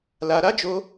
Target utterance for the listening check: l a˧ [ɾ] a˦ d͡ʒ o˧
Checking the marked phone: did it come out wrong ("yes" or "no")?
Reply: no